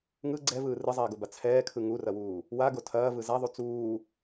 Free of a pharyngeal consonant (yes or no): yes